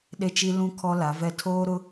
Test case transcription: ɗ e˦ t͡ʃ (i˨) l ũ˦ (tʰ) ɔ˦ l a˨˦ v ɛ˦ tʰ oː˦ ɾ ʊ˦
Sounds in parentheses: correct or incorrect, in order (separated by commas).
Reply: incorrect, incorrect